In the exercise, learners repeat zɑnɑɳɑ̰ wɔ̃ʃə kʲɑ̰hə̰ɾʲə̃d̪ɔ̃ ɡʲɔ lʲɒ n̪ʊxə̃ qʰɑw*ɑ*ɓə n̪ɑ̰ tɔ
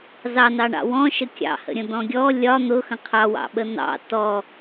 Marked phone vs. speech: incorrect: ɑ̰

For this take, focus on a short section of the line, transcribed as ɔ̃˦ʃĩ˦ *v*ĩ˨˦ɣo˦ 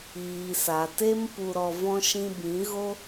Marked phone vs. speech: incorrect: b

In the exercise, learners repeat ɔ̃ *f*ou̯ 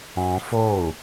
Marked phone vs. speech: correct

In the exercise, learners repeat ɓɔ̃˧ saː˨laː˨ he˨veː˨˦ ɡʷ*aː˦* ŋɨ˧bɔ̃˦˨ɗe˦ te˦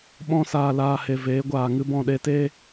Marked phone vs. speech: incorrect: aː˨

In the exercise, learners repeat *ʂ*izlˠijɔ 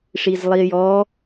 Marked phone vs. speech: correct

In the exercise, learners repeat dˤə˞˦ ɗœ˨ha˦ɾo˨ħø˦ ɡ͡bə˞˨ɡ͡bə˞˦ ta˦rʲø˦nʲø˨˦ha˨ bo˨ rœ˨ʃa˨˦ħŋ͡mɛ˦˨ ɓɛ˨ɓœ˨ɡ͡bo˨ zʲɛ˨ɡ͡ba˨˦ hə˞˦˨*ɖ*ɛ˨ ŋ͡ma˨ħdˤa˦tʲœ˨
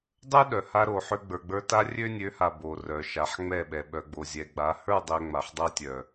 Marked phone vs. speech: incorrect: dˤ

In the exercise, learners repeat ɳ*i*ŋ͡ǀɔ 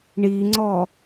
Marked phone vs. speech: correct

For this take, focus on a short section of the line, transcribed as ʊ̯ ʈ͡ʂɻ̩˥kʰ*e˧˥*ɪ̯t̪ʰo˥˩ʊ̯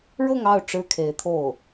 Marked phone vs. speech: correct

